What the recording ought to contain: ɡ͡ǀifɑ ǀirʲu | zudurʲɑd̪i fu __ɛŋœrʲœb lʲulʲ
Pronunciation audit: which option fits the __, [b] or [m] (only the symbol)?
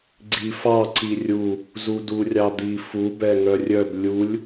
b